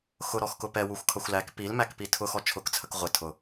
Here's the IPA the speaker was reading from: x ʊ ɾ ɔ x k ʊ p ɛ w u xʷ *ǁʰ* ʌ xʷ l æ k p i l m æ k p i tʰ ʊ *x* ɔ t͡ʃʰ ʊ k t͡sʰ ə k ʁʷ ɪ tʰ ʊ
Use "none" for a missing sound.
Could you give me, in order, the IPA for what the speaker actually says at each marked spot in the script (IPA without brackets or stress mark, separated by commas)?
kʰ, x